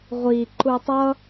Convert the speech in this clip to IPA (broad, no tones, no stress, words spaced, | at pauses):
ʁʷi ǃutˤʌ